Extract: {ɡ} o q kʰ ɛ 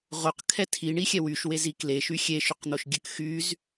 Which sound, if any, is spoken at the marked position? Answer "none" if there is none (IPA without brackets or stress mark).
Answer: ʁ